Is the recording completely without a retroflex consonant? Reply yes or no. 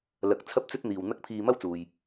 yes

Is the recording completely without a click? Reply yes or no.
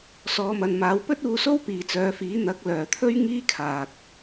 yes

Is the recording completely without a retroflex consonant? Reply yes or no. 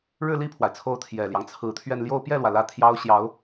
no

